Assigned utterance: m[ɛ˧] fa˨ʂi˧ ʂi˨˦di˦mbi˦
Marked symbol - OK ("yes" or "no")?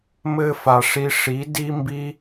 no